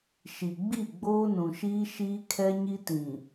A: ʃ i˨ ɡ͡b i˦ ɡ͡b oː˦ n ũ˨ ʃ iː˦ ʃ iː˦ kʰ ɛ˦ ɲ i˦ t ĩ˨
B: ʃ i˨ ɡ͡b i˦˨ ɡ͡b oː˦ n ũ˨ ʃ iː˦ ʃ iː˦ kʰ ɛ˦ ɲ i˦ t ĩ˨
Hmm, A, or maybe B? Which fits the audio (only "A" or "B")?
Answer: B